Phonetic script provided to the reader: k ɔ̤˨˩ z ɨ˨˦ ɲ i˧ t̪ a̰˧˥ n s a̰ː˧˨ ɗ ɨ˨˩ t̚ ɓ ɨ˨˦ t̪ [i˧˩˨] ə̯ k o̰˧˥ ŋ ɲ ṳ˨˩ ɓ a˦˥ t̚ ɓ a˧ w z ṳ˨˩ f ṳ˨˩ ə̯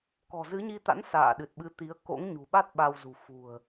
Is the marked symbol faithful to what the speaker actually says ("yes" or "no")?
no